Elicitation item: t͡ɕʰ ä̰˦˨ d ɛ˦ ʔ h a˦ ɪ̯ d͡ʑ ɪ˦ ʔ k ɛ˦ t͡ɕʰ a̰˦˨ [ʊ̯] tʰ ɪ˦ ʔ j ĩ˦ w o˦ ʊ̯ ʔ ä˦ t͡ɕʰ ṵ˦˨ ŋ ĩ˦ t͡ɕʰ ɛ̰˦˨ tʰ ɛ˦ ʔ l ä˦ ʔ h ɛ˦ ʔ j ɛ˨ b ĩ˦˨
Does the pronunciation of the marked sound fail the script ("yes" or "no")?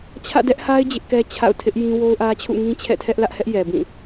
no